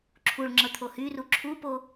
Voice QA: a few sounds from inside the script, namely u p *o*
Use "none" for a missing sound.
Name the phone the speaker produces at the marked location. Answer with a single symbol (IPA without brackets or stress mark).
o